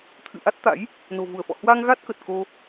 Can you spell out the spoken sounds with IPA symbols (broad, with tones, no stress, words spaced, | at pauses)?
t̪ʰɨ̰˧˨ʔa˦˥t̚t̪a̰˧˥j | no̤˨˩vu˧˩ə̯fɔ̰˧˨ hwa˧ŋɣa˦˥t̚ kə˨˩t̚ko˧